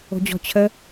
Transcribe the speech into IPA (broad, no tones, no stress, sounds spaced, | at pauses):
o̤ d͡ʑ ɔ̤ t͡ɕʰ ə